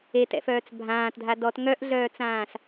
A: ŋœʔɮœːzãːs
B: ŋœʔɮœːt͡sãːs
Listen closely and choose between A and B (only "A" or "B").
B